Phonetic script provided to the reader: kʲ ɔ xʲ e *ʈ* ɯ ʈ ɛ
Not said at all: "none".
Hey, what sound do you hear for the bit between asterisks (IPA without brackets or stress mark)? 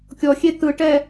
t̪